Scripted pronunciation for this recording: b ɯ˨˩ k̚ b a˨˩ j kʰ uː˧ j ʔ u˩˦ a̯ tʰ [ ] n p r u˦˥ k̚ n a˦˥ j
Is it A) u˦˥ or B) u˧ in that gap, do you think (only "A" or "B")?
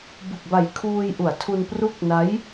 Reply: B